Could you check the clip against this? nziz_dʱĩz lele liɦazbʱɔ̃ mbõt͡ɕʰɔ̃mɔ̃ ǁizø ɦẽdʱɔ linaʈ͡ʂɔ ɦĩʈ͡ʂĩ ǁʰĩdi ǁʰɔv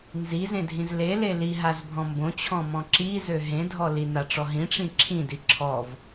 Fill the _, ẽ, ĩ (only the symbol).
ẽ